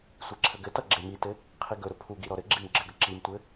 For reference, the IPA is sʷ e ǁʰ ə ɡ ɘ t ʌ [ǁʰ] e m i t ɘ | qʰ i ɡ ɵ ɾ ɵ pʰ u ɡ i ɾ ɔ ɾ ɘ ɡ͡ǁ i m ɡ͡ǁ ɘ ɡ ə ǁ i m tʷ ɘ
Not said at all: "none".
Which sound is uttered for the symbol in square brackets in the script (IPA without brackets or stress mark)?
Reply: ɡ͡ǁ